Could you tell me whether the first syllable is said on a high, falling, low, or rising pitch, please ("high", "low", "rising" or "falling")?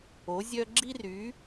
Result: rising